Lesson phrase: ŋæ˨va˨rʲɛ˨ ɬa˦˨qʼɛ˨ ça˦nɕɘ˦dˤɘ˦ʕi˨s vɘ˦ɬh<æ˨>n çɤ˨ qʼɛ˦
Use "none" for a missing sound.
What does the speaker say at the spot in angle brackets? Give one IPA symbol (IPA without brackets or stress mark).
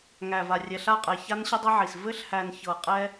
æ˨